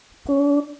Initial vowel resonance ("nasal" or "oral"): oral